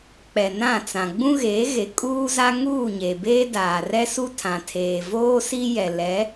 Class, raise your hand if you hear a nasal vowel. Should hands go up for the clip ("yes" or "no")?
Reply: yes